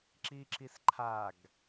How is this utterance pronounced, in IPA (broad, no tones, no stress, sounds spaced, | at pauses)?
ǁ i ǁ i s ǃʰ a ɡ